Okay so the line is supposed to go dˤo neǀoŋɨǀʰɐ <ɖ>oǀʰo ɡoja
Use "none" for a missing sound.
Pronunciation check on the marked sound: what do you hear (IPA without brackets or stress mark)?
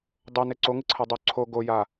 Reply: dˤ